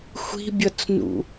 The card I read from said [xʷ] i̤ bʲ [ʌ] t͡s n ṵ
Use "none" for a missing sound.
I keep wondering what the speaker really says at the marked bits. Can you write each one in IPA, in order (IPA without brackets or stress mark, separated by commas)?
xʷ, ʌ